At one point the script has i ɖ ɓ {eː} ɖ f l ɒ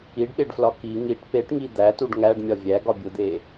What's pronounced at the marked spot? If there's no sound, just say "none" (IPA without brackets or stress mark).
e